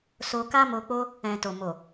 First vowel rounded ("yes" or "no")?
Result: yes